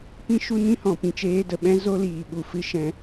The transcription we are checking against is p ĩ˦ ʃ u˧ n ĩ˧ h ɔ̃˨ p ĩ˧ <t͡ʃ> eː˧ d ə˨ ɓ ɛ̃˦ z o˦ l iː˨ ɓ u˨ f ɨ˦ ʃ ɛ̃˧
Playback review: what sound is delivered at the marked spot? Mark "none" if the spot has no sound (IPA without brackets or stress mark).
t͡ʃ